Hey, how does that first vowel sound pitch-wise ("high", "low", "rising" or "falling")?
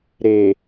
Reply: low